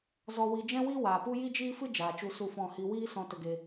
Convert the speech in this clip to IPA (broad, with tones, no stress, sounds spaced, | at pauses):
z ɔ˧ w i˧ d͡ʒ ɛ̃˦ w iː˦ w aː˨ p u˦ j i˦ d͡ʒ iː˦ f ɨ˦ d͡ʒ aː˨ t͡ʃ u˧ s u˦˨ f ɔ̃˦˨ h i˧ w iː˦ s ɔ̃˧ t ə˧ ɡ e˧